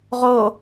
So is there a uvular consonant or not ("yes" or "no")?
yes